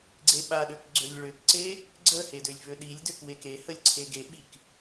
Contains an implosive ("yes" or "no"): yes